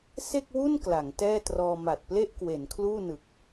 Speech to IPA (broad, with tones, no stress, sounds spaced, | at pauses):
s e˥˩ k̚ w u˥˩ n k l a˩˦ ŋ t ɛː˥˩ t r ɔː˧ m a˨˩ t̚ p l e˥˩ ʔ k w e˩˦ n kʰ l uː˥˩ n ɯ˨˩ k̚